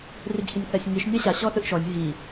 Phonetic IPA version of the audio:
r i ɡ h i nʲ θ a sʲ ŋ i ʃ nʲ a ɕ a ɕ ɔ θ ɯ ʔ ʃ ɔ nʲ ɦ i

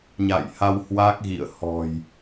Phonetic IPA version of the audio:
ɲ a̰˧˨ j h a˧ w h w a˦˥ k̚ ɣ ḭ˧˨ ə̯ h ɔ̤˨˩ j

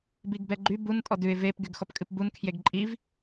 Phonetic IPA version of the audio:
b i ɡ b ɛ ɡ͡ǃ y b u n tʼ ɔ d ʉ ɪ̯ v e p ɡ y ɡ x ɔ p kʼ ɨ p b u n kʰ j e ɡ ǃʼ i v

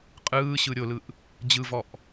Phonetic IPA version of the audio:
qʼ ɯː ɕ ɯ ɾʲ o l ɯ ʔ | d͡ʑ ɯ v ɔ ʔ

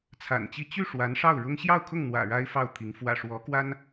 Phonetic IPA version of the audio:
t͡sʰ a̰˨˩ n t͡ɕ i˥˧ t͡ɕ y˥˩ ʂ w a˧˥ n ʂ ɑ˥˩ ʊ̯ ɻ ʊ˥ ŋ ɕ j ɑ˥˧ ʊ̯ kʰ ʊ˥˩ ŋ n̪ w ä̰˨˩ ɻ a˥ ɪ̯ f ɑ˥˩ ʊ̯ t̪ʰ i˧˥ ŋ f w ä̰˨˩ ʂ w ɔ˧˥ k w a˥ n

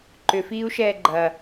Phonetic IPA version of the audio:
ǃ ʏ f iː u̯ ʃ ɛː ɡ͡ǃ ɐ

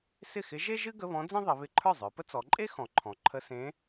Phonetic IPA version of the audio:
s ɪ˥˩ x ɪ˧˥ ʒ e˥ ʒ ɨ˥ ɡ ə˧˥˧ β ɔ̃˧˥ d͡z ẽ˥ ðˤ ɪ˩˧ β ɪ˧˥˧ ǃʰ ə˞˥˩ zˤ ə˞˩˧ p ə˥ t͡s ɔ˩˧ ǃʼ e˥ x ɔ̃˩˧ ǃʰ ɔ̃˩˧ ǃʰ ə˧˥˧ s ẽ˧˥

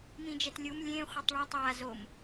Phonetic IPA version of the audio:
m ĩ d͡ʒ ɛ t lʲ u m lʲ ẽ χʷ ʌ tˤ ɭ ɛ tˤ a z o m

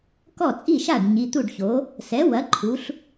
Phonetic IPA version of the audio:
k ɔ˥˩ t͡sʼ i˥˩ ʃ a˥˩ ɖ ɲ i˩˧˩ t̪ u˥˩ ɖ ç o˩˥ | s ɛ˩˥ w ɐ˩˥ ǃʰ u˩˥ ɬ

